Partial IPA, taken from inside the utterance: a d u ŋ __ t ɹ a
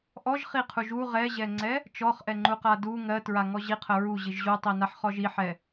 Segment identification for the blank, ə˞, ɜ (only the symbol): ɜ